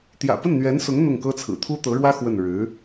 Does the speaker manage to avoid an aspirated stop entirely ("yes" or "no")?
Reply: no